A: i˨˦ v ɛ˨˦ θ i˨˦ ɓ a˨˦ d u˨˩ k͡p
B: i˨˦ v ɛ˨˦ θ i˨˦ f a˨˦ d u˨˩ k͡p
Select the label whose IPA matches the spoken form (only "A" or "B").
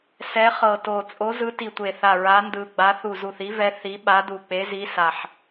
A